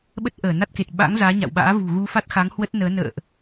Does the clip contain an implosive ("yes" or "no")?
yes